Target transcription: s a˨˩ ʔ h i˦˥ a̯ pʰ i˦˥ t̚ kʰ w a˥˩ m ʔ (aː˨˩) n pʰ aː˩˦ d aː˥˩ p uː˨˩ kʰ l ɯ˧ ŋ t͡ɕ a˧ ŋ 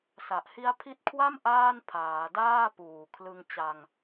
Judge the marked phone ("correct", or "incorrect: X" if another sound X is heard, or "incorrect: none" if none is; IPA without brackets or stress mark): incorrect: aː˥˩